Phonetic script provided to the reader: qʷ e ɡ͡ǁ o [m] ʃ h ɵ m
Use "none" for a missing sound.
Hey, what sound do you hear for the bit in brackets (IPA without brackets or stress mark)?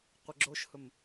none